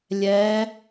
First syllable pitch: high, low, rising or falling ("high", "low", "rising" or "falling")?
rising